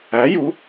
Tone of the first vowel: rising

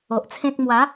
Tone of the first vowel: low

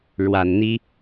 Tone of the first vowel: low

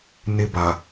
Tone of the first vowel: high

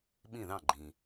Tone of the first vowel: falling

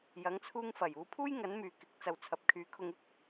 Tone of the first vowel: rising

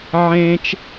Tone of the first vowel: high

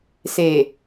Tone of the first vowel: low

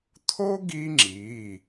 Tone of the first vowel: high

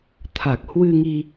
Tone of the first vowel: low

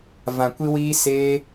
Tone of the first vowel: low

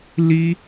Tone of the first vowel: high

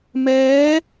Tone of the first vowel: rising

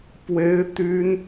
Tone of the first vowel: high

